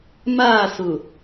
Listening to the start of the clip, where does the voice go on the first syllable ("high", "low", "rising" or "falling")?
falling